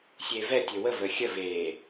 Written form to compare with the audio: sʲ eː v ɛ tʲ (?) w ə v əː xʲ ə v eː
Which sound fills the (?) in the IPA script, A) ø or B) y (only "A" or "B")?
A